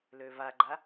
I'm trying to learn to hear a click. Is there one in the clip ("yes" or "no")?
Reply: yes